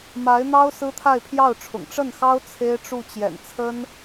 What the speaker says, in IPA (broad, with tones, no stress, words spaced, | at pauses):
ma˧˥ɪ̯n̪ɑ˥ʊ̯ sɹ̩˥t̪ʰa˥˧ɪ̯pʰjɑ˥˩ʊ̯ʈ͡ʂʰʊ̰˨˩ŋ ʈ͡ʂə˥˩nxɑ˥ʊ̯ t͡sʰe˥ɪ̯ʈ͡ʂu˥˩ t͡ɕjɛ̰˨˩nt͡sʰə˥n